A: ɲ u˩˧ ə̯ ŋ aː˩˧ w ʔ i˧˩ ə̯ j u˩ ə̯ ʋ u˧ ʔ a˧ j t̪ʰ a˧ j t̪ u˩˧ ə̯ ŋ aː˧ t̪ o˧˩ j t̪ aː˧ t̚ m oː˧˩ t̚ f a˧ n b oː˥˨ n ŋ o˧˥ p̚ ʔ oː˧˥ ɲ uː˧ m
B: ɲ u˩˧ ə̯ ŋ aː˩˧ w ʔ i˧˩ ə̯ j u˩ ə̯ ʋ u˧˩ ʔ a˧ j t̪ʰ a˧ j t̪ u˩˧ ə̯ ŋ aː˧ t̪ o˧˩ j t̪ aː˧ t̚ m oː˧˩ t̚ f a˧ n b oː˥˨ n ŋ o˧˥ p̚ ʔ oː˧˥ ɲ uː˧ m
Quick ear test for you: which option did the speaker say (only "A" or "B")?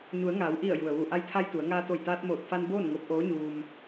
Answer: B